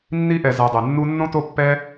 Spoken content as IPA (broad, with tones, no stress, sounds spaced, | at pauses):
nː i˥ ʔ ɛ˨ z a˨ dˤ ɛ˩ nː u˦ nː õ˥ t o˦ pː ɛ˦